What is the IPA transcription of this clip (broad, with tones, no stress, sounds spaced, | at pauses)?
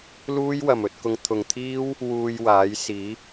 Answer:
l uː˥ j w ɐ˨ m ɵ˧ t̚ k ʊ˧ ŋ t̪ʰ ʊ˨ ŋ t̪ʰ iː˥ w | w uː˧ j w aː˨˥ j s iː˨˥